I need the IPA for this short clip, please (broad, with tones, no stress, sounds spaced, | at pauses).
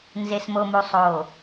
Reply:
n z e˨ s m o˨ m u˨ sˤ oː˨